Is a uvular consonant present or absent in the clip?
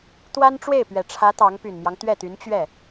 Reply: absent